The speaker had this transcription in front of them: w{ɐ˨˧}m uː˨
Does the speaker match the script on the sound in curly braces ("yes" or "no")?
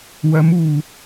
yes